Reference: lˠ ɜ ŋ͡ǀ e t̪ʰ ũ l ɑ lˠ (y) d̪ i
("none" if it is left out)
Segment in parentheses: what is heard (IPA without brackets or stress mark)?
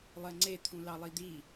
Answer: i